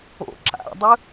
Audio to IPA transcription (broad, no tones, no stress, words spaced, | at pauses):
o̰ ǁa̰dˤɯ